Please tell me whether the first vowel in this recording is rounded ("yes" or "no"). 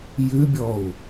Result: yes